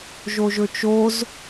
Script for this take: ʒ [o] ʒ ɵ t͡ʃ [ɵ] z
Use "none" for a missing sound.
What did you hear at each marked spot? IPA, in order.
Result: o, o

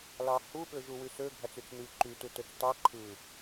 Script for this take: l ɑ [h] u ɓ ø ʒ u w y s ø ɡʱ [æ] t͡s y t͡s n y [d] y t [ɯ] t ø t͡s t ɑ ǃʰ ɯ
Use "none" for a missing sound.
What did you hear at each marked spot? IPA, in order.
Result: h, æ, ǃ, u

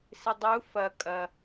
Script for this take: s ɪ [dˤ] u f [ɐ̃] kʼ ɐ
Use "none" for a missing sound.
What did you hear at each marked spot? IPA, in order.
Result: dˤ, ɐ

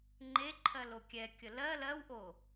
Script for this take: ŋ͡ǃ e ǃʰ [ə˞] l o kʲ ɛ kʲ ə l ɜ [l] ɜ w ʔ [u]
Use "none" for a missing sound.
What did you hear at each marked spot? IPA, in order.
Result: ɜ, l, o

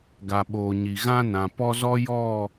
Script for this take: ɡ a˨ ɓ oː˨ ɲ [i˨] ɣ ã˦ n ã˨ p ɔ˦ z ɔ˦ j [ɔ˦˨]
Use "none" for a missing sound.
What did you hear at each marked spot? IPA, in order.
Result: i˨, ɔ˦˨

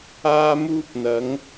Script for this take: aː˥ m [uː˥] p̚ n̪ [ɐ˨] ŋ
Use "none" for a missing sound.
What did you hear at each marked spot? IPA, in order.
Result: uː˥, ɐ˨˥

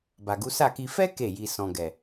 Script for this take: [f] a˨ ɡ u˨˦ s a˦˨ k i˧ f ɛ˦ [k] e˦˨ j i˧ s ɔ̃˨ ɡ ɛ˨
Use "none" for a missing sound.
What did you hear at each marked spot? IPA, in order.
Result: b, k

